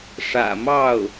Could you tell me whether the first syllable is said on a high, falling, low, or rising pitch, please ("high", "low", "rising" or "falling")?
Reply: low